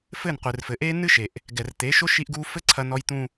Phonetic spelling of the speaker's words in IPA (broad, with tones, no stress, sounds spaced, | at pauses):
f ɘ˦˨ n qʷ ɨ˨ r f ɘ˨ ʔ e˦ n ɨ˦ ʃ e˨ ʔ | ɡ ɛ˨ r t̪ e˨˦ ʃ o˦ ʃ i˦ ʔ ɡ u˦ f ɘ˦ ǀʰ ɐ˦ n ɔ˦ j t̪ ũ˦